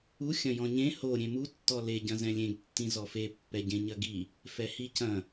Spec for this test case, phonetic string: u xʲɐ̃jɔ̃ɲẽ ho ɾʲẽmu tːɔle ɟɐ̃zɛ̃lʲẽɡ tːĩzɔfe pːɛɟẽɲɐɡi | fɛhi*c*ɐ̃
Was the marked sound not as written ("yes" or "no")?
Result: no